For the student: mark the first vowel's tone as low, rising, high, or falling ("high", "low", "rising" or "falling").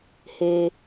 high